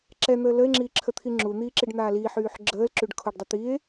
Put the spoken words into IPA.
ǁɛn̪əː ləe̯ŋ͡ǁiːǁʰət̪ʰi ŋ͡ǁun̪iːǁiɖn̪aː liħyːħ ɡ͡ǁəːlǁyɖ kʰoɖdˤə t̪ie̯

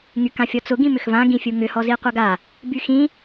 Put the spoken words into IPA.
ŋykãfʲɔt͡sʊ ɡĩmʏxvã ɡĩfʲuŋʏ hɔziqʷaɡa | byxĩ

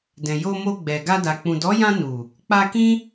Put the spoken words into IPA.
dɛ̃˨jo˧mo˧ɡ͡bɛ˨ ɡa˧da˨ k͡pũ˨dɔ˨˦jã˧ nu˨ | k͡pa˧kĩ˦

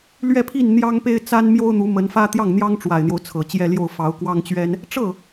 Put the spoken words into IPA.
lɥɛ˥˧pʰi˥˩n n̪jɑ˥ŋpe˥ɪ̯t͡sa˥n mjo˥ʊ̯n̪u˧˥mə˧˥nfä˥ t̪jɑ˥˩ŋn̪jɑ˥ŋ ʈ͡ʂwa˨˩ɪ̯n̪jo˦ʊ̯ t͡sʰɤ˨˩t͡ɕjɛ˥˧ljo˥˩ʊ̯ fɑ˧˥ʊ̯kwɑ˥ŋt͡ɕɥɛ˥n | ʈ͡ʂɤ˥˩

